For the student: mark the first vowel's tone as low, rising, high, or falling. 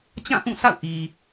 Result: falling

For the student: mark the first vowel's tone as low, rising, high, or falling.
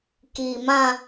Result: low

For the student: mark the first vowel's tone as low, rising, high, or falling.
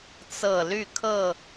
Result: low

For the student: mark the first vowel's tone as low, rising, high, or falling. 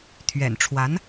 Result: low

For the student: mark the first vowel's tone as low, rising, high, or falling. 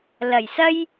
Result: low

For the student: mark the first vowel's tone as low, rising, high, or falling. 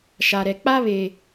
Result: low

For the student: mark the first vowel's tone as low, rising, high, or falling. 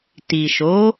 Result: low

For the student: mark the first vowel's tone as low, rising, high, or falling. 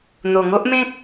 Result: low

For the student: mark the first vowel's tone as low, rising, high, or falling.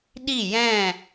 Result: falling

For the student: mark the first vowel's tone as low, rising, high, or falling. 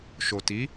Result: low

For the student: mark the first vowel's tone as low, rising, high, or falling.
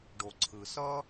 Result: low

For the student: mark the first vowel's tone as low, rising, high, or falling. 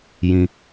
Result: low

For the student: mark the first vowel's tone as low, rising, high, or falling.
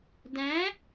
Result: rising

